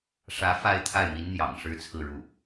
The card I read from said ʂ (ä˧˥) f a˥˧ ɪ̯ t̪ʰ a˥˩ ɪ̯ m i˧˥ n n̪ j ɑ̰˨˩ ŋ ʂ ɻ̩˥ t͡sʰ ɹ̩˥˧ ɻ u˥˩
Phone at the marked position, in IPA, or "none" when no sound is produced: ä˧˥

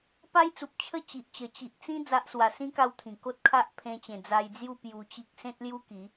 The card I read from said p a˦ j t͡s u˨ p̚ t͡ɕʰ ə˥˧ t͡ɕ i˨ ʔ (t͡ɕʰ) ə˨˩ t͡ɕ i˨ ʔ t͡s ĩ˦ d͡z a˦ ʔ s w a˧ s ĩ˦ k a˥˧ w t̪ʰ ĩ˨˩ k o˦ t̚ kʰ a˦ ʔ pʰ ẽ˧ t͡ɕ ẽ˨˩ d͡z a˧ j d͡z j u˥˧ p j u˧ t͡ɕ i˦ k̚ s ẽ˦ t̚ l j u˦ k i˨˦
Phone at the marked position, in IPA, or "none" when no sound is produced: t͡ɕ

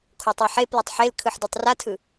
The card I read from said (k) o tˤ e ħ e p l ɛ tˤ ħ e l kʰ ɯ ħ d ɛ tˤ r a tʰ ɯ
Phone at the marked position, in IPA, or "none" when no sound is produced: kʰ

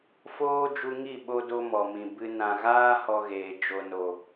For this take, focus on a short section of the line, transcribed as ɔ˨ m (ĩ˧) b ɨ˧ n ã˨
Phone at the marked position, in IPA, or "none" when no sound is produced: ĩ˨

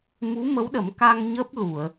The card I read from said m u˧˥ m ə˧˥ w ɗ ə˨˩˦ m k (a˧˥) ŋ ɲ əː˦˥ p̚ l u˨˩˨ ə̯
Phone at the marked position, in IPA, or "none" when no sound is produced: a˧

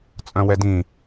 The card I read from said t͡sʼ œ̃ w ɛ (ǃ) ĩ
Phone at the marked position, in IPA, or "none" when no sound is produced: d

